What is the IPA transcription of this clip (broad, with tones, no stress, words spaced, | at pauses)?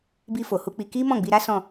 bi˧fo˨hu˧ k͡pi˧ ki˦ mɔ̃˦˨ɡ͡bi˧ɾa˦ sɔ̃˦˨